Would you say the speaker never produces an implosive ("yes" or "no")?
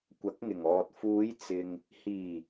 yes